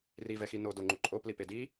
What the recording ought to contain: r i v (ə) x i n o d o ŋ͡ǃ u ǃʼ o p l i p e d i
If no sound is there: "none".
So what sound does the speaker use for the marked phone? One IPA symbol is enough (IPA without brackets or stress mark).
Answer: ɛ